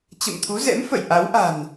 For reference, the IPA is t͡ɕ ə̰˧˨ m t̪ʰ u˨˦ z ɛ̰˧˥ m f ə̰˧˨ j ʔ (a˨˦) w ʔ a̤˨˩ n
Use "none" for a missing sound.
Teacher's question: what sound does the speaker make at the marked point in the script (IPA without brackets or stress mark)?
a˨˦